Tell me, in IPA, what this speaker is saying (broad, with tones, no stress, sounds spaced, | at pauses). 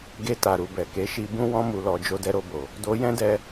ɡ e˧ t a˨ ɾ u˨ b ɛ˨ k e˨˦ ʃ i˧ b ũ˦ w ɔ̃˧ m u˨ l ɔ˨ d͡ʒ o˧ d ɛ˧ ɾ o˧ b o˨ | d o˧ j ɛ̃˦ d ɛ˧